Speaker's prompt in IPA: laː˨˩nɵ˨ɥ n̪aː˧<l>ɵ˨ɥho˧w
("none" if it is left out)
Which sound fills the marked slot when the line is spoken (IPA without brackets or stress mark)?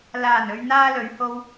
l